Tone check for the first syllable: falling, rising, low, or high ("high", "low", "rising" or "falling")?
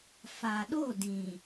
low